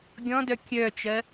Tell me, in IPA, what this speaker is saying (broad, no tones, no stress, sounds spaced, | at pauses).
ɡʲ ɔ̃ d œ kʲ œ t͡ʃ ɜ